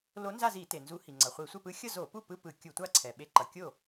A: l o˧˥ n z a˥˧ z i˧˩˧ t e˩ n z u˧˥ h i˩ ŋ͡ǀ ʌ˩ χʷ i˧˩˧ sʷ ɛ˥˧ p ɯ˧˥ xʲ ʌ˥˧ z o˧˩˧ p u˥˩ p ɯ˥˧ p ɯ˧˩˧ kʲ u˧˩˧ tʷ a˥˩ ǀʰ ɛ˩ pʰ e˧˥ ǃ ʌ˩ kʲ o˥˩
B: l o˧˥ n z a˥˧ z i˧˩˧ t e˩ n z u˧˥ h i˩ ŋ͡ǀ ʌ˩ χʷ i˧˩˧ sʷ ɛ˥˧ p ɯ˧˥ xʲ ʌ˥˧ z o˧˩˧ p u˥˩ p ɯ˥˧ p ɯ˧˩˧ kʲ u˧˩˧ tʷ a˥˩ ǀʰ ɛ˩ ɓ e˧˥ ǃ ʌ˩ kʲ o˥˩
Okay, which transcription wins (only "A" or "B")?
B